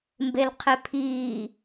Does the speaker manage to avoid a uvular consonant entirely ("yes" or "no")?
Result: no